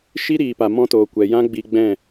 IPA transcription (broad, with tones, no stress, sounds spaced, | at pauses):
ʃ i˦ ɾ iː˨ p a˨ m ɔ̃˧ t oː˨ kʷ ɛ˨ j ã˦ ɡ͡b i˧ ɡ͡b ɛ̃˦˨